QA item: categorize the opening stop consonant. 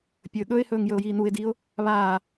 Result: plain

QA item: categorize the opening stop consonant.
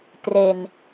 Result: plain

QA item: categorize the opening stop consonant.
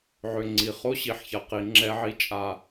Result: click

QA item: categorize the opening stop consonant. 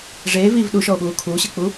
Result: implosive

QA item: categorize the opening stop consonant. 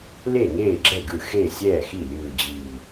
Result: click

